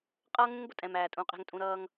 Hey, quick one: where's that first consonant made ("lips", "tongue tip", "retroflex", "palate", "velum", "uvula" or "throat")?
uvula